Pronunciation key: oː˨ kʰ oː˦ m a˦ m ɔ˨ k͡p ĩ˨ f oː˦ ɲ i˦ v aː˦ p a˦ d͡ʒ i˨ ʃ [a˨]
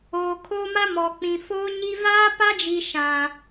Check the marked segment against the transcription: incorrect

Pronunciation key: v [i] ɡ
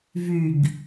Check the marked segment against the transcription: incorrect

